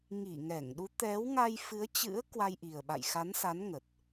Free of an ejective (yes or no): yes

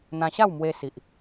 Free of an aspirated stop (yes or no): yes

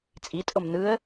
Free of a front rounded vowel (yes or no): yes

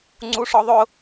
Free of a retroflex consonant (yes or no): no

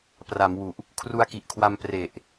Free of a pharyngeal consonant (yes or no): yes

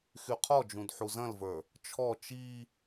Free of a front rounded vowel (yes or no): no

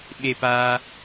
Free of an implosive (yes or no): no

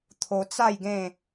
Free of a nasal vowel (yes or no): no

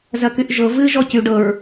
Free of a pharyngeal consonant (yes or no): yes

